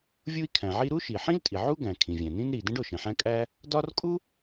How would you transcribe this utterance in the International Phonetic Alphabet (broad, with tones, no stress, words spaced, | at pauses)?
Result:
vʲu˥i̯kʰæ̃˩ʕi˥ ɾu˥ʃi˩ħĩ˥ltʼi˩ ʕu˥ɡæ̃˩ kʰĩ˩vʲæ̃˩nĩ˥n ɾi˩dẽ˥ɖ o˩ʃẽ˩ħæ̃˥ kʼæ˥ | dɒ˥r kʼu˥